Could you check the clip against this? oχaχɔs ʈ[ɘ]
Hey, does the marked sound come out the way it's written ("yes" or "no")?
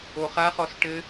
yes